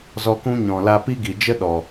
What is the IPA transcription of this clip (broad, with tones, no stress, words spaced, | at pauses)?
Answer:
zɔ˧kũ˦ ɲɔ̃˨la˧pi˦ ɡi˨d͡ʒə˦ ɗɔ˨